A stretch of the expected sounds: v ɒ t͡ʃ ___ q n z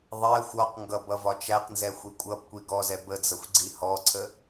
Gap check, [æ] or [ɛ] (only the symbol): æ